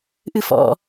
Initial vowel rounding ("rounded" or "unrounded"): unrounded